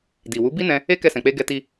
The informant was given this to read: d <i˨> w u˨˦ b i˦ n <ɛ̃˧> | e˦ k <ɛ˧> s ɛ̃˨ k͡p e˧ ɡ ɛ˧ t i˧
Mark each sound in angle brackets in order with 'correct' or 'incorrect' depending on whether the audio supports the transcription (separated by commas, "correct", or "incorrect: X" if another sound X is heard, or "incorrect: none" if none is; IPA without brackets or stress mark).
correct, correct, correct